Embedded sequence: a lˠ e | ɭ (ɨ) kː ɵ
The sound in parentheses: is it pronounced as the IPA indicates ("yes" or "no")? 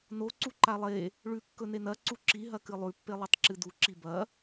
no